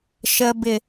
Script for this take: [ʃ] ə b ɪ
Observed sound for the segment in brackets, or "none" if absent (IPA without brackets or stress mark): ʃ